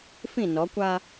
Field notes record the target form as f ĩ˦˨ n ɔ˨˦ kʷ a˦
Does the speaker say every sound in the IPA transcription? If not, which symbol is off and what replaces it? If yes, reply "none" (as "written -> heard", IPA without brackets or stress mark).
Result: none